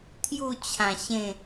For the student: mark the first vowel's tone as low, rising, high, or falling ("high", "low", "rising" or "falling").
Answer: falling